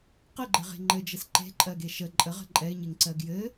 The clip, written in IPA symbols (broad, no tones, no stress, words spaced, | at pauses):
qɘɡ͡ǃɘʁe̤ ŋ͡ǃɘd͡ʒɘs ǃe̤ǃʼɜɡe ʃə ǃʼəʁə̤ ǃʼɛɪ̯ɲeŋǀɜ ɡjɘ